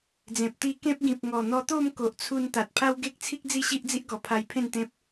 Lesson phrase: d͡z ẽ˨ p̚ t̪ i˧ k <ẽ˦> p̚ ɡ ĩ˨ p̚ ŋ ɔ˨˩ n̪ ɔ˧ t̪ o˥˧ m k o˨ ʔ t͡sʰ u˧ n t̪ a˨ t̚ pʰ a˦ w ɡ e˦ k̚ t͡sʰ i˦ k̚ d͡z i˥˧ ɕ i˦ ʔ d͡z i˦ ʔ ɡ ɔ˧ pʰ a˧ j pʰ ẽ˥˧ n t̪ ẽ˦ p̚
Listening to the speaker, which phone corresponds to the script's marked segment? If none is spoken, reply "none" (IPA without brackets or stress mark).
ẽ˦